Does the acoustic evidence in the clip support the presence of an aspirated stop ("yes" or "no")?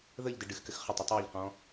no